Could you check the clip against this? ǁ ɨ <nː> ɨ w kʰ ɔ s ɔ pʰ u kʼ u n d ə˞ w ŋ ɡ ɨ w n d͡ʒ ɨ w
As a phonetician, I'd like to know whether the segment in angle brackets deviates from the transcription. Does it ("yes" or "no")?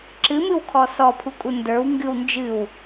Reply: yes